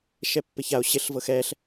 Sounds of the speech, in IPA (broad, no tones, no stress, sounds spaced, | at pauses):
ʃ ɛ pː ɪ ç a o̯ ɕ ɪ ɬ v ɤ x ɛ ɬ